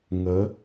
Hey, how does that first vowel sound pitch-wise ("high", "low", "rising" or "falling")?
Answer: rising